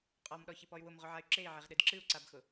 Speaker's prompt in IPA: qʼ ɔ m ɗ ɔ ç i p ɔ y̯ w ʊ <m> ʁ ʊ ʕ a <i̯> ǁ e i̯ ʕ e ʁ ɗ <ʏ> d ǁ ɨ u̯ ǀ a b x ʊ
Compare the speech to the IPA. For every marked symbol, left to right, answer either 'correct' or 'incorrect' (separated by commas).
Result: correct, incorrect, incorrect